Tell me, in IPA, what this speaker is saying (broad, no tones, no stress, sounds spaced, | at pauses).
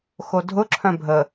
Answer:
x o dʱ ʊ ǁʰ œ̃ bʱ ə